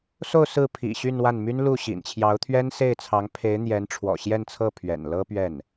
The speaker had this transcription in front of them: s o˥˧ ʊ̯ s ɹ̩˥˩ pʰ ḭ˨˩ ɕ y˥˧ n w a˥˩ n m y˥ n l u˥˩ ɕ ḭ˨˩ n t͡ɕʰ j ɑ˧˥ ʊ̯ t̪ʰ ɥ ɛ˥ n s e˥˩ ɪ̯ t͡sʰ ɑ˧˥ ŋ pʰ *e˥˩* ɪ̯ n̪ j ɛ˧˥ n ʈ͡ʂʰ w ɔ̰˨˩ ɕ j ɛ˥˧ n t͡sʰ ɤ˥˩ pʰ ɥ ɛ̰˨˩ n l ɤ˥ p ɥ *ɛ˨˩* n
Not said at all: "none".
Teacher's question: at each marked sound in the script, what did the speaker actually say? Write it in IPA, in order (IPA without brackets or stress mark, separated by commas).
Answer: e˧˥, ɛ˥˩